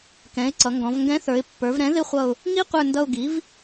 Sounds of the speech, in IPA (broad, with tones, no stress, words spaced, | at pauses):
kɛ̃˩˥ɪ̯ǀʌ˩˧ŋɡɔ̃˩˧vŋɡɛ̃˧˥ θə˞˩˧ɪ̯pːə˞˩˧vɾɛ̃˩˥ ðɪ˥χʷʌ˦˨ʊ̯ | ŋi˥qʷə˞˦˨ndʌ˦˨ʊ̯ɡi˩˥v